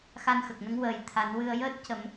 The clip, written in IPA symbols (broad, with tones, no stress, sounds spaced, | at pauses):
x a˧ n x ə˨˩ k̚ n ə˧˥ ŋ w əː˨˩˦ j t̪ʰ a˨˩˦ n w ɨ˧ ə̯ j əː˦˥ t̚ c ə˨˩˦ m